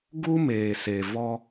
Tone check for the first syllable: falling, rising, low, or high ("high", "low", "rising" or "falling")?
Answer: high